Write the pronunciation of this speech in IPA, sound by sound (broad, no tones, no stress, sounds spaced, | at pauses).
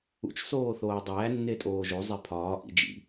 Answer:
ṵ t͡ʃ s oː θ oː dˤ æː nː e tʼ oː ʒ o zˤ e pʰ ɒː ʔ ḭ d͡ʒ ḭ